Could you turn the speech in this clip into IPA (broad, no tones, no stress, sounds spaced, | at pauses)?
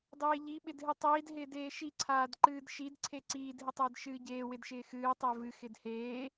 dˤ eː ʎ i ɓ ɪ d ɦ ɨ tˤ iː d ɦ ɪː d eː ʃ i ǀʰ aː d ǃ ɨː d ʃ i d ǀʰ e ǀ iː d ɦ ɪ tˤ ɨː d ʃ ɨː ɟ eː w ɪ d ʃ ɪː x ɨː tˤ ɛ v ɨ x ɪ d h eː